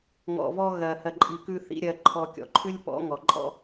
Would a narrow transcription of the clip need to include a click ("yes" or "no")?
yes